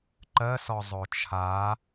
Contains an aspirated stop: yes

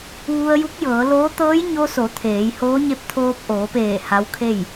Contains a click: no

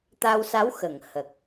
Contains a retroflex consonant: no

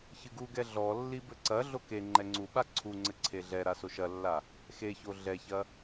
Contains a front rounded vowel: no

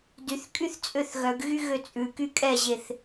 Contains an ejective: yes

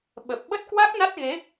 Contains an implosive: yes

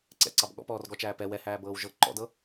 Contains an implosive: yes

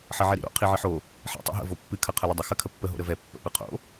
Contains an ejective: no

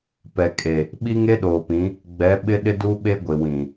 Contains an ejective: yes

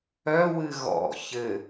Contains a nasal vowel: no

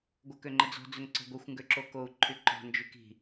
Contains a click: yes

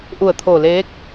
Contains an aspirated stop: yes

